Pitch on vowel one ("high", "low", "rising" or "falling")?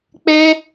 high